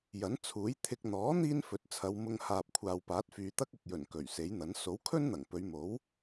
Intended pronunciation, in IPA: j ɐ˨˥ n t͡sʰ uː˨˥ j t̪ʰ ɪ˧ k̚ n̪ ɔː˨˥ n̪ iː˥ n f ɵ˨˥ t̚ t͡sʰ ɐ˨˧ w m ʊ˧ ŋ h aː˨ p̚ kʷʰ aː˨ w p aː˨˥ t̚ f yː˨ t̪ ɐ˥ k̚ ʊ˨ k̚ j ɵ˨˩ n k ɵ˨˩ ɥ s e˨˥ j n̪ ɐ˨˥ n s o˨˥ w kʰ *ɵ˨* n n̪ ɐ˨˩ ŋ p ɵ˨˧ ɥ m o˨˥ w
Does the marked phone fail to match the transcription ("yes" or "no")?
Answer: yes